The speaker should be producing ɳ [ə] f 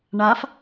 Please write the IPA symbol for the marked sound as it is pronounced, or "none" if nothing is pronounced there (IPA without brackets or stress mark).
a